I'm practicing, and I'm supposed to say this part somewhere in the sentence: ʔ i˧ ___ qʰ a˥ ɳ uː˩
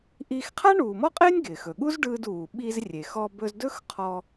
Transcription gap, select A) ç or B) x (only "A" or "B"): B